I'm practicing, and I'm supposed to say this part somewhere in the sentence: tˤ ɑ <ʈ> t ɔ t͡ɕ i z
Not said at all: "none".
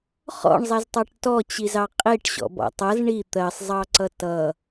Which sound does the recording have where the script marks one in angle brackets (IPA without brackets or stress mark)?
ʈ